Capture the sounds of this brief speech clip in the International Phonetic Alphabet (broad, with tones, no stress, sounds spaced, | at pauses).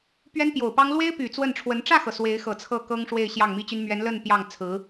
p ɥ ɛ˥ n p j o˨˩ ʊ̯ p ɑ˥ ŋ l w e˥ ɪ̯ p y˨˩ t͡s w ə˥˩ n ʈ͡ʂʰ w ə˧˥ n ʈ͡ʂ ä˥˩ x ɤ˩ s w e˧˥ ɪ̯ x ɤ˨˩ t͡sʰ ɤ˥˩ k ɤ˥ ŋ ʂ w e˥˧ ɪ̯ ɕ j ɑ˥˩ ŋ m i˥ t͡ɕ y˥ n m ɥ ɛ˧˥ n l ə˥˧ n p j ɑ˥˩ ŋ t͡sʰ ɹ̩˧˥